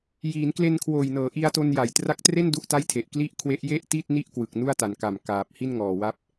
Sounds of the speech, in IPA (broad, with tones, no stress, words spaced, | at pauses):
jiː˩˦nkle˧nkʰwoː˨˩jnɤː˩˦ ʔi˧a̯to˧n ja˨˩jtra˦˥k̚tre˥˩n du˦˥ʔta˥˩jtʰe˨˩ʔ kli˥˩ʔ kʰwe˦˥ʔje˥˩ʔti˥˩t̚ni˥˩ʔ kwɯ˨˩k̚nu˥˩a̯ta˩˦nka˨˩m kaː˨˩p̚ hi˥˩nŋɔː˨˩wa˦˥p̚